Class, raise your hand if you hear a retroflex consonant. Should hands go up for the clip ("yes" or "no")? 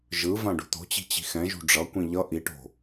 yes